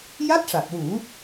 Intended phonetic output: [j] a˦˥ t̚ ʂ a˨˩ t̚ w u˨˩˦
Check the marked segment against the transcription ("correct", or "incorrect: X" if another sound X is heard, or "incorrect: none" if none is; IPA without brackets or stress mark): correct